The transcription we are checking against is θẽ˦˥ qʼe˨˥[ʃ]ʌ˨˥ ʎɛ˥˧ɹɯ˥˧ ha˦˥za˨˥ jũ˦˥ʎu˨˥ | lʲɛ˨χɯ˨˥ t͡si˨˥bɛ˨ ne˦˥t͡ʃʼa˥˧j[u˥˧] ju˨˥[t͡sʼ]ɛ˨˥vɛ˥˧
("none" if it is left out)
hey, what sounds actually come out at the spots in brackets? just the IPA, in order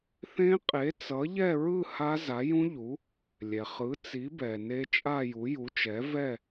t͡s, u˨˥, t͡ʃ

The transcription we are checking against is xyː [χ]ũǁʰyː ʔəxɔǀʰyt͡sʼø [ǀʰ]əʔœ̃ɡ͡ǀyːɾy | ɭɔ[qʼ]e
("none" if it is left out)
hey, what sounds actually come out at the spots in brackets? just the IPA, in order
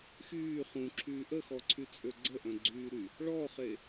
χ, ɡ͡ǀ, χ

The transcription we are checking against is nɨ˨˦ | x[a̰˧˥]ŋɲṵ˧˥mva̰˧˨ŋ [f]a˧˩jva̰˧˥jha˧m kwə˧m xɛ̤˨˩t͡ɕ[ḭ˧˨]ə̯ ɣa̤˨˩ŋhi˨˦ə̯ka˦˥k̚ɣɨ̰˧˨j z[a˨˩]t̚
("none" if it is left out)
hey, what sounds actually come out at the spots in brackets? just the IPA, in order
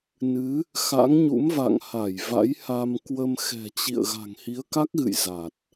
a̰˧˥, h, ḭ˧˨, a˨˩

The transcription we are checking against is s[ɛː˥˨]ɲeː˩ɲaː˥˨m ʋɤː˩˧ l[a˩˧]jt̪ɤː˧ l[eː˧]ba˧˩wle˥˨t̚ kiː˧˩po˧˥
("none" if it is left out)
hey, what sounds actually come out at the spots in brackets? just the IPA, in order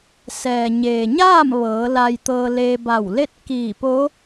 ɛː˩, a˧, eː˧

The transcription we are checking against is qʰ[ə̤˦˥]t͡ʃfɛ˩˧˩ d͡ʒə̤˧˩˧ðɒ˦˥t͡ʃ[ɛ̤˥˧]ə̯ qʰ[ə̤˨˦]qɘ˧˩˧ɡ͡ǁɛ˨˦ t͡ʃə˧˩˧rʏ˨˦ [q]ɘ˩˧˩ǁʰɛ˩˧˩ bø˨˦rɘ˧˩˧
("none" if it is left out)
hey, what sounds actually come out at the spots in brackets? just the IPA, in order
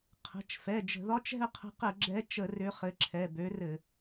ə̤˩˧˩, ɛ̤˥˧, ə̤˨˦, χ

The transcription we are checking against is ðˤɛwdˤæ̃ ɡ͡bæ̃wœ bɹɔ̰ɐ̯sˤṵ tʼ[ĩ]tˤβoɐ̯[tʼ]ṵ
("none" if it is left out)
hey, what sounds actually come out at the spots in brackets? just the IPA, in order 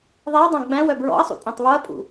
ĩ, pʼ

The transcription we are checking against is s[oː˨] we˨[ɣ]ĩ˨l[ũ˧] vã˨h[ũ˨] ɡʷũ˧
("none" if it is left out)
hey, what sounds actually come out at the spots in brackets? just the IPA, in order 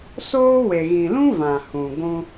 oː˦, ɣ, ũ˦, ũ˨

